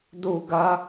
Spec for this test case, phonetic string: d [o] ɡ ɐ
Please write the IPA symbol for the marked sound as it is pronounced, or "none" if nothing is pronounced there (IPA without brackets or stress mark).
u